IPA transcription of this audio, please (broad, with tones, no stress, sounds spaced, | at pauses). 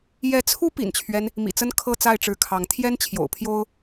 j ɛ˨˦ t͡sʰ u˦ p ḭ˨˩ n t͡ɕʰ ɥ ɛ˦ n | m ḭ˨˩ t͡s ə˦ n kʰ ɤ˥˨ t͡s a˥˨ ɪ̯ ʈ͡ʂ ɻ̩˨˦ kʰ ɑ˨˦ ŋ t̪ʰ j ɛ˦ n t͡ɕʰ j o̰˨˩ ʊ̯ pʰ j o˦ ʊ̯